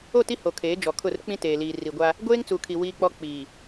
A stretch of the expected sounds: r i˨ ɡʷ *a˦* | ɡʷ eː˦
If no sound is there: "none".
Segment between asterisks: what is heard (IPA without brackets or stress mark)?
a˦